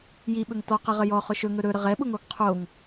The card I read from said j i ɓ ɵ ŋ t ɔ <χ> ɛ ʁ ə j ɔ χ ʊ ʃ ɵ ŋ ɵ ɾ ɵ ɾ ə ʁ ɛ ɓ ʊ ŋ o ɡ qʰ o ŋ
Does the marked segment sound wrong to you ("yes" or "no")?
yes